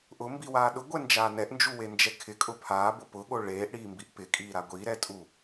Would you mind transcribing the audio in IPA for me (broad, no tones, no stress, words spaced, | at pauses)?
ʔʊmbiwaː ɗʊɡʷɛnd͡ʒaː nɛʔnd͡ʒuwend͡ʒɛ kʰɪkʼʊ pʰaːbʊ pʊɠo ɭeːʔɽiːmbiʔ pɪkʼiːɾa ɡʷiɾɛtʼu